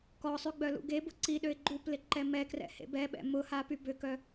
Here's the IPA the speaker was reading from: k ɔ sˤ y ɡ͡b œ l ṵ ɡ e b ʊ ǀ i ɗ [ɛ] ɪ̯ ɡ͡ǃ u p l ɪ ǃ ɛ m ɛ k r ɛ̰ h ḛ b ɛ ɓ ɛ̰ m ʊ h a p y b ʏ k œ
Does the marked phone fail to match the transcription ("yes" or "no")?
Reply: yes